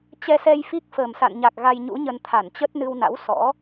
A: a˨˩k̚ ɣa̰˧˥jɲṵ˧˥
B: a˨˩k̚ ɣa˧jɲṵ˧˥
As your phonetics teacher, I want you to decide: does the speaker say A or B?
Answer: B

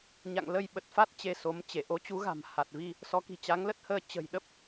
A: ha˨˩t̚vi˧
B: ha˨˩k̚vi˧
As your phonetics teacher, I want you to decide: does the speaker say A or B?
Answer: A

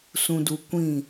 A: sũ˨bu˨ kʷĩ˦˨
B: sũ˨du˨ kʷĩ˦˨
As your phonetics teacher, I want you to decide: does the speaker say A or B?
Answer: B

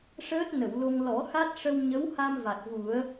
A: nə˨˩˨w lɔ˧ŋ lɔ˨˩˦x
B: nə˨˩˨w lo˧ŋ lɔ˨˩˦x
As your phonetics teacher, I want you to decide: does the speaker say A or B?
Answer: B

